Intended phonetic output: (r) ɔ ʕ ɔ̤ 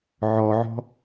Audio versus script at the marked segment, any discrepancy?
yes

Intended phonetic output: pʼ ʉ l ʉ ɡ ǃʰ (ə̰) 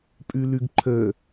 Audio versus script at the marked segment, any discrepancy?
yes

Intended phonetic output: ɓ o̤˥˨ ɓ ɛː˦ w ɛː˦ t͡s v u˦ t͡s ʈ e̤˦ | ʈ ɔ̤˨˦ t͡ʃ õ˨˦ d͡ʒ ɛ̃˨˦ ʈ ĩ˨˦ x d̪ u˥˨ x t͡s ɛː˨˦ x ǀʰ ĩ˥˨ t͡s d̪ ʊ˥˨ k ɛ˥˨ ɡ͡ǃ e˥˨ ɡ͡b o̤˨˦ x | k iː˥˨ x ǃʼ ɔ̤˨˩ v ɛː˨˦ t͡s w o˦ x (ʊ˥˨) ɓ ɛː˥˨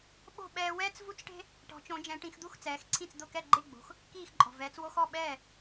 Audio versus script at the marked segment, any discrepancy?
yes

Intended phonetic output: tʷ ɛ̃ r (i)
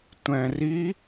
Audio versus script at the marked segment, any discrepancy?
no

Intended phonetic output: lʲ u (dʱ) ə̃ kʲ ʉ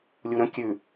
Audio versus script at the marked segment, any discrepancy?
yes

